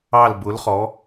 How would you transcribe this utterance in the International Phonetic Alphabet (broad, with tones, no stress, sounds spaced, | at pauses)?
ɑ˧˩ l b ʊ˩˧ l χ ɔ˩˧